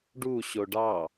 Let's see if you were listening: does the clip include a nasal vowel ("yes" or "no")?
no